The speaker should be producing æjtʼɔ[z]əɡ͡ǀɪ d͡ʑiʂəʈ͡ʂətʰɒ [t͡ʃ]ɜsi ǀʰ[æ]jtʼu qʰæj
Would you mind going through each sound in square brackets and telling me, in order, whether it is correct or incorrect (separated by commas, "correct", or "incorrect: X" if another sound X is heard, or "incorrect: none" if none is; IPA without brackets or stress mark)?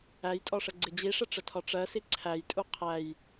incorrect: ʂ, incorrect: ʈ͡ʂ, correct